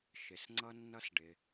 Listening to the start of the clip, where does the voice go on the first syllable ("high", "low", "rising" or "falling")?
low